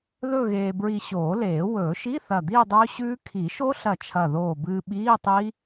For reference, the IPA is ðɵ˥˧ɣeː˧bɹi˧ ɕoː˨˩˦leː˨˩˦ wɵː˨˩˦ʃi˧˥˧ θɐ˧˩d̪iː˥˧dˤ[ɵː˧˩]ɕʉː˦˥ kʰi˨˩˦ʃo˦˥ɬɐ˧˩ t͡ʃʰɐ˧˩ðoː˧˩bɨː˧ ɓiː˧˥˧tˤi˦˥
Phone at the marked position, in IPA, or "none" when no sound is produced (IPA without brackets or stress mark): ɵː˦˥